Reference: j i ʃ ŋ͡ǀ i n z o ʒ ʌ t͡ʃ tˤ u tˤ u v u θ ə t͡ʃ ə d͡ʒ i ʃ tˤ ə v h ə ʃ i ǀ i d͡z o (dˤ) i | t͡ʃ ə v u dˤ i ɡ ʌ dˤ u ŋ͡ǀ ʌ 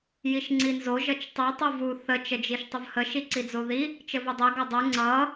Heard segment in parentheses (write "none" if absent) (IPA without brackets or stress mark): ð